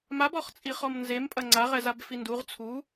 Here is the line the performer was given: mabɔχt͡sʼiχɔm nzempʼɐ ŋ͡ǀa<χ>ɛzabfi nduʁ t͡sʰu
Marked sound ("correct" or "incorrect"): incorrect